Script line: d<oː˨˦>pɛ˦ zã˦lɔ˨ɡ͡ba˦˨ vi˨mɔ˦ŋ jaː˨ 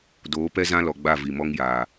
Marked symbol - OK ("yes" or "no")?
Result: yes